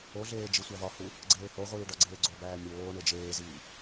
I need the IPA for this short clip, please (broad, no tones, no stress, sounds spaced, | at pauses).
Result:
o ɮ eː d͡ʒ i sʷ æ v ɒ h u | ɡ͡ǀ eː h o ʁʷ iː ɖ ɒ ɡ͡ǀ eː ɡ͡ǀ o b æː mʲ oː ɳ e d͡ʒ eː z iː